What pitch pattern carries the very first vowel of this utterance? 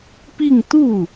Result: falling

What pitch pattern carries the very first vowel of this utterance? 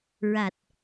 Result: low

